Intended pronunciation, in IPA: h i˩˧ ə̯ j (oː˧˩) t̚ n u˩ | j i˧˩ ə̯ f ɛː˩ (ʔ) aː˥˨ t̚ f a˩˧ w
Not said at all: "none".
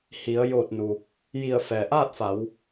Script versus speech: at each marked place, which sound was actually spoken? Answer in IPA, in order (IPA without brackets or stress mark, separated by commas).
oː˧˩, ʔ